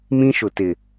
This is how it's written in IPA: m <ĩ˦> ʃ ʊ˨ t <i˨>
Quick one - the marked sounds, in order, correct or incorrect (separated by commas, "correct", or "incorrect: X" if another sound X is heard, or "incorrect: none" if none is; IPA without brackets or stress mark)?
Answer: correct, incorrect: ɪ˨